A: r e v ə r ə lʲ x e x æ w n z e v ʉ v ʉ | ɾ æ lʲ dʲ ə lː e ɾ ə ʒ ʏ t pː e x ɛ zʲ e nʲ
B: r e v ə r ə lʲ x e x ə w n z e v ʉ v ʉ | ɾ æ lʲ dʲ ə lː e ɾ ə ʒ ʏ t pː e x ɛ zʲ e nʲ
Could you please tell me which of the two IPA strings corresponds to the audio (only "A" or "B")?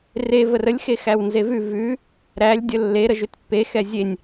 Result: A